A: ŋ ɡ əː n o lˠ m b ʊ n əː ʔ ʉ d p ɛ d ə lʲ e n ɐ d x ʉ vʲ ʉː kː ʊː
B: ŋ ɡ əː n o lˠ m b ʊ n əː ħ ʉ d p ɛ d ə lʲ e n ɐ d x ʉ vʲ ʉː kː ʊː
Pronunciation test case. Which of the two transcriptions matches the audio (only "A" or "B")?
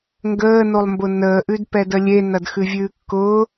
A